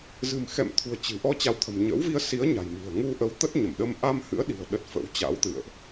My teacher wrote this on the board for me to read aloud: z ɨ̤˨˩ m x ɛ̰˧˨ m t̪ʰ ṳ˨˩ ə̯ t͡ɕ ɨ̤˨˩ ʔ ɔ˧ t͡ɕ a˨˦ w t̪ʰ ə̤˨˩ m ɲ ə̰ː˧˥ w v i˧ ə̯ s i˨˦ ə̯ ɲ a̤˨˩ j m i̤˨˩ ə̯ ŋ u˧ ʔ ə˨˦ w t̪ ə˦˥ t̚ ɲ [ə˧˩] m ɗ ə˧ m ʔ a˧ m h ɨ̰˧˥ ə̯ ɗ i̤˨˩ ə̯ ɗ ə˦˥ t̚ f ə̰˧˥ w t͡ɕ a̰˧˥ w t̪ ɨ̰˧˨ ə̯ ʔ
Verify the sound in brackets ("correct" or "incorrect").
correct